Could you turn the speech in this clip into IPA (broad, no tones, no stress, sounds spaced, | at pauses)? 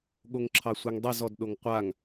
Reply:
ɠ o ŋ ǁʰ ɑ sʷ ɛ ŋ dˤ i z ɔ d ɗ o ŋ qʷ a ŋ